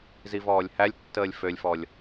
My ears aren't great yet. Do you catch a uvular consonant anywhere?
no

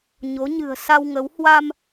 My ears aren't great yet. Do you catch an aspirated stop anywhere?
no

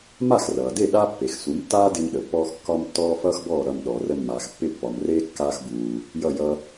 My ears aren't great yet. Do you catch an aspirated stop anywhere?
no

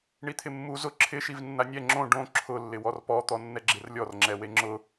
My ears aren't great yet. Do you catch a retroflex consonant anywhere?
yes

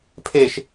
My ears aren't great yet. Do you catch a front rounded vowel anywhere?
no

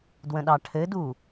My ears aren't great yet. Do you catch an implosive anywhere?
yes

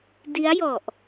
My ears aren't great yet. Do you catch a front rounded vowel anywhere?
no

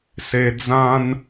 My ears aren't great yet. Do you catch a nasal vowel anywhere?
yes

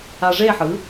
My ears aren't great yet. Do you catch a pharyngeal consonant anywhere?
yes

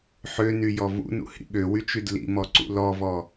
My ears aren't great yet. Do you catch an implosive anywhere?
yes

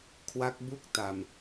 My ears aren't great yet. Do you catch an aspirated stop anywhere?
yes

